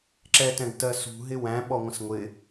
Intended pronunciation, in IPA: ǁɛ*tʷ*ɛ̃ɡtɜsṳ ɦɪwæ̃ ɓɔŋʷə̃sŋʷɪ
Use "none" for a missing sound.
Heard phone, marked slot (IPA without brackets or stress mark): t